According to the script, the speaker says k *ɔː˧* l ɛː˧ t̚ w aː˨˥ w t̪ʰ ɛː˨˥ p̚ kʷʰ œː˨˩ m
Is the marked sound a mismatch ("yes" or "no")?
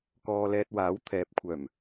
no